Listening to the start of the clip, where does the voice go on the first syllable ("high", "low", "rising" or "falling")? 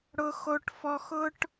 high